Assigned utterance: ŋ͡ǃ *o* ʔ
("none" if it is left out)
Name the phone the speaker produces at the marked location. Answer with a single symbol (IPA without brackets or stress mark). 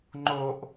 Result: o